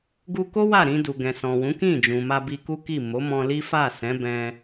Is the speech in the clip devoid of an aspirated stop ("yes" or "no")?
yes